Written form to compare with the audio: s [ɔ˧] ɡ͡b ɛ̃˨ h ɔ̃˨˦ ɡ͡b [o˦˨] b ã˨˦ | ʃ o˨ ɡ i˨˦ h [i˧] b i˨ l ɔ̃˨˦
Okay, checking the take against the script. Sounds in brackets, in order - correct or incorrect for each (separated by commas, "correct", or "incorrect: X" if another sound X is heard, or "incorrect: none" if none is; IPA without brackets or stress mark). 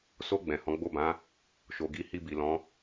incorrect: o˧, correct, correct